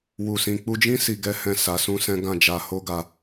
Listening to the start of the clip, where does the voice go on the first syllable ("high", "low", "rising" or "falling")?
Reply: low